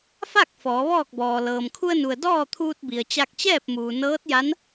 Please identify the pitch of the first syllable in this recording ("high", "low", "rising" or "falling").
falling